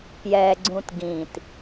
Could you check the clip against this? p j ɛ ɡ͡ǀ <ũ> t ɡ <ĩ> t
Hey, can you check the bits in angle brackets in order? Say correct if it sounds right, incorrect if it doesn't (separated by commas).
correct, correct